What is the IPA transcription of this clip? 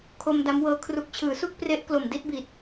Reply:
kʰ o˧ m d a˦˥ m w ɤː˦˥ kʰ r u˨˩ k̚ t͡ɕʰ ɯː˩˦ s u˥˩ k̚ p r e˦˥ ʔ k l o˨˩ m d i˥˩ t̚ b i˨˩ t̚

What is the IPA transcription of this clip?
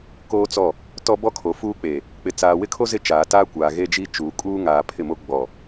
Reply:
k oː˦ t͡s ɔ˦˨ | t ɔ˦ b ɔ˦ kʰ o˨ f uː˦ k͡p e˨ | k͡p ɪ˨ t͡s aː˨ w ɪ˦ kʰ o˦ z ɪ˦ t͡ʃ aː˨ t aː˦ kʷ aː˨ ɣ e˦ d͡ʒ i˦ t͡ʃ uː˨ kʼ uː˦ ŋ aː˨ pʰ ɪ˦˨ m o˦ ɡ͡b ɔ˨

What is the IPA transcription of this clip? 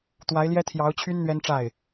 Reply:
t̪ w a˧˥ ɪ̯ l j ɛ˥ t̪ʰ j ɑ˧˥ ʊ̯ t͡ɕʰ y˥ n n̪ ɥ ɛ˥ n ʈ͡ʂ a˥˩ ɪ̯

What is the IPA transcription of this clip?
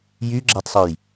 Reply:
j y ɡ͡ǁ æ tˤ sˤ ø j

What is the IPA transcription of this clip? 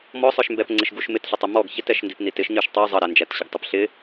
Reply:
m ɔ sˤ ə˞ ʃ m b ɛ p ŋ͡ǀ ɪ ʃ ɡ u ʃ m ɪ t ɬ ʊ tˤ ɛ m ɔ ɡ ç ɪ t ɛ ʃ n d i p n i t ɪ ʃ ɲ ə˞ ʃ tˤ ə˞ zˤ ʌ ɾ æ n d͡ʒ æ t ɕ ʊ ɡ tˤ ɪ p ɬ ɪ

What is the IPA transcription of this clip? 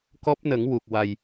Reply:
k ɔ˦˥ p̚ n ə˨˩˦ ŋ w u˨˩ k̚ w a˨˩ j

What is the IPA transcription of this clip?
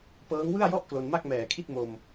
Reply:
p ɤː˦˥ ŋ w ɯ˥˩ a̯ j ɔ˥˩ ʔ k l o˧ n m a˥˩ k̚ m ɛː˨˩ kʰ i˥˩ t̚ m o˧ m

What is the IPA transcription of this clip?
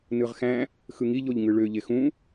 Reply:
n ɯ ʁ x æ̃ | x ɯ ŋ i ʎ o ʎ ŋ ɯ ɭ ø ʎ e x ũ

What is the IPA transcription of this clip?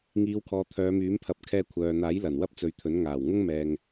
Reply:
ŋ iː˨˧ w kʰ ɔː˨ t̪ʰ œː˨˧ m yː˨˥ m pʰ ɐ˨˥ p̚ kʰ ɛː˧ kʷʰ œː˨ n̪ aː˨˥ j l ɐ˨˩ n w ɐ˥ p̚ t͡s ɵ˨˥ ɥ t̪ʰ ɵ˨˥ n ŋ aː˨˩ w ŋ ʊ˥ ŋ m ɛː˨ ŋ

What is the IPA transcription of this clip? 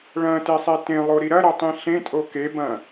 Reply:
ɭ ɐ̃ t e sˤ e t ẽ lˠ o ɾ i ɾ ɐ ɾ ɐ tˤ ĩ ɬ ẽ tʼ o k e b ɐ̃

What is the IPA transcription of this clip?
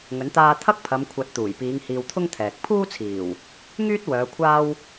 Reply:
ŋ ɵ˨˥ n t̪ aː˧ t̪ʰ ɐ˥ k̚ pʰ ɐ˨˧ m kʷʰ ɐ˨˥ t̚ t̪ uː˨˩ j p iː˨˧ ŋ h iː˧ w t̪ʰ ʊ˥ ŋ t̪ʰ ɛː˨ k̚ pʰ uː˥ t͡sʰ iː˨˩ w | ŋ yː˥ t̚ w œː˨˧ kʷʰ aː˥ w

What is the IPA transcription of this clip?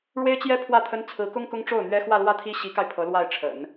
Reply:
ɻ w e˥ ɪ̯ t͡ɕ j ɛ˥ pʰ w ä˥˩ t̪ʰ ə˥ n t͡sʰ ɹ̩˧˥ k ʊ˥ ŋ k ʊ˥ ŋ ʈ͡ʂ o˥˩ ʊ̯ n̪ ɥ ɛ˥ x w ä˥˧ l w ä˥˩ t̪ʰ i˥ ɕ i˧˥ k a˧ ɪ̯ pʰ ɤ˧˥ l w a˥˩ ɪ̯ ʈ͡ʂʰ ə̰˨˩˦ n

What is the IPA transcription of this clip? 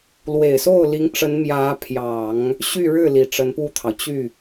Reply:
l w e˨˩ ɪ̯ s o˥˩ ʊ̯ l i˧˥ ŋ ʈ͡ʂ ə˧˥ n m j ä˧˥ pʰ j ɑ˨˩˦ ŋ | ɕ y˥˧ ɻ ɻ̩˥˩ l i˨˩ ʈ͡ʂ ə˧˥ n p u˥˩ t̪ʰ ɑ˩ ʊ̯ t͡ɕ y˥˩

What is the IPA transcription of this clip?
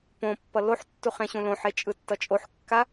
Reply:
p õ pː ʌ l o ħ tː u χ ẽ ɕ ũ l õ ħ e t͡ʃʼ ɯ tː ʌ t͡ʃʼ o ħ kː a

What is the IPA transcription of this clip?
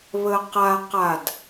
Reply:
β ə q a q a d

